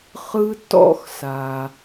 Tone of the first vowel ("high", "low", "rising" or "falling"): high